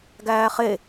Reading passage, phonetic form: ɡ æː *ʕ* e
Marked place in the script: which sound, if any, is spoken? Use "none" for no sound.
χ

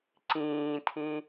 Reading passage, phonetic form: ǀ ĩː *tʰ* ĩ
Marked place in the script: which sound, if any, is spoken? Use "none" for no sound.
tʰ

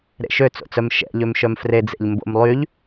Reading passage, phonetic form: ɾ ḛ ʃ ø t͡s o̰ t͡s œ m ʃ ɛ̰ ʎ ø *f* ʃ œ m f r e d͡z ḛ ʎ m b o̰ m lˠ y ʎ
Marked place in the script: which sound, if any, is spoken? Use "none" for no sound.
m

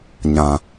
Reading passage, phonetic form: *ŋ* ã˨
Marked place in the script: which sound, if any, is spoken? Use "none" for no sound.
ɲ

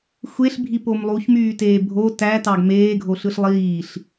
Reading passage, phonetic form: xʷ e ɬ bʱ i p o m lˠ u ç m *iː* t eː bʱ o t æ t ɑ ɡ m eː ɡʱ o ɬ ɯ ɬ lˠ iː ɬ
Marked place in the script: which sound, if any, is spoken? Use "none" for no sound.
yː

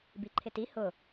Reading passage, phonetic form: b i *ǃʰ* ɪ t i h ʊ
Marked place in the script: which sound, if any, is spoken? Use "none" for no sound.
ǃʰ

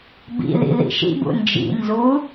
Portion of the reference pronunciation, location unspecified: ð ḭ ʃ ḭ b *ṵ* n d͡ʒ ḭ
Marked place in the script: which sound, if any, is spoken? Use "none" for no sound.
ṵ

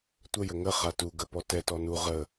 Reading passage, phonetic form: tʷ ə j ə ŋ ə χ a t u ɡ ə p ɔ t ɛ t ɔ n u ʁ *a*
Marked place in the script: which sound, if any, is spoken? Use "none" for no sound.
ə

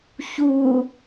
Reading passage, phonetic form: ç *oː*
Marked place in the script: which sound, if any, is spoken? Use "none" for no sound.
uː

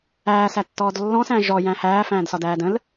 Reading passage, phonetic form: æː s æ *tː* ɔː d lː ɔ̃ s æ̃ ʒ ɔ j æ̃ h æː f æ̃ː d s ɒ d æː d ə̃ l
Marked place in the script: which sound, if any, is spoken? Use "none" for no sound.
tː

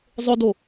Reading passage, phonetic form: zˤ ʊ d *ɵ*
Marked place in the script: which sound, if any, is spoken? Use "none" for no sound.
o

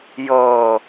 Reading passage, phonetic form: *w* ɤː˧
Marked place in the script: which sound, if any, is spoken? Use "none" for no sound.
j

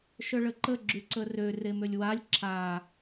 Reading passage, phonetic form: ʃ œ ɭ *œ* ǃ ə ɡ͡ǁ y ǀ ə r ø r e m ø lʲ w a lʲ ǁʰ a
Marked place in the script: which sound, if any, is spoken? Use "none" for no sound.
ə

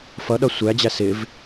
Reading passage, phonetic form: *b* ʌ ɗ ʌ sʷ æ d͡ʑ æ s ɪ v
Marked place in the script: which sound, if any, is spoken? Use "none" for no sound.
f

